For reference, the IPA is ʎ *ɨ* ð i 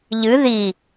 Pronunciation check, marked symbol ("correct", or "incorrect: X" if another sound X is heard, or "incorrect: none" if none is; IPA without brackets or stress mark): correct